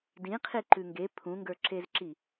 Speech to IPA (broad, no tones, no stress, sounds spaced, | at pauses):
d ĩ qʰ i ǃ ʉ ŋ ɡ e pʰ ũ ŋ ɡ ə˞ ǁ e z ǁ i